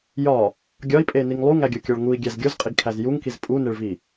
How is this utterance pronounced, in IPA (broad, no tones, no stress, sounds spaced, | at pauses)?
j ɒ | ɡʲ ɒ i̯ pʼ e n i ŋ lˠ u ŋ æ ɡʲ o kʲ ɒ ɭ ŋ u i̯ ɡʲ æ z ɡʲ o z qʼ i ɡ kʰ æ z j u ŋ k i z pʼ u n e ɭ v i